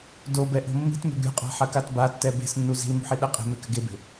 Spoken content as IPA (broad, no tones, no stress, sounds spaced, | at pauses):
d o b ɛ ʔ o̤ mː i̤ t m e̤ ɡ ɾʲ ṳ qʼ a̤ ħ ɐ k a t b a tː ɛ b e̤ s nː u z i̤ l m ṳ ħ i ɗ ɛ qʼ e̤ m e k ɘ ɡ e b e̤